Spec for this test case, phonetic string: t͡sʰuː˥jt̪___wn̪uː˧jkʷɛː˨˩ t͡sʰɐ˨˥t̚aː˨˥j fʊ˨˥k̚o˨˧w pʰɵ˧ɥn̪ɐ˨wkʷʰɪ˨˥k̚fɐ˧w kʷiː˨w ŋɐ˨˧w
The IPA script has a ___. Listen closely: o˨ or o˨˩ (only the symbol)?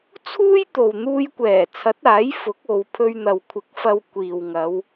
o˨